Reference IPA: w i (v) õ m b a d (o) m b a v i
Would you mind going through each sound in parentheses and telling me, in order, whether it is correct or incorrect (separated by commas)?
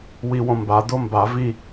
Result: incorrect, correct